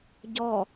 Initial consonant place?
palatal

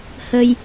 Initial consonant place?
glottal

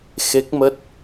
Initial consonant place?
velar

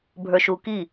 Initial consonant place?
labial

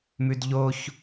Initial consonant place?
labial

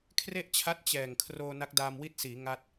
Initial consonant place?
velar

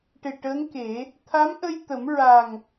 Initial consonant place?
retroflex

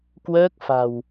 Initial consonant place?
velar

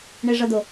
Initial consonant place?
retroflex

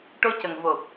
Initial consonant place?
retroflex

